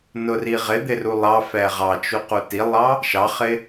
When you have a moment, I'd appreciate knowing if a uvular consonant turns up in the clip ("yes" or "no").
yes